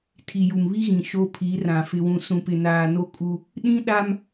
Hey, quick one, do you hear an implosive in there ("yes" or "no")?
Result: yes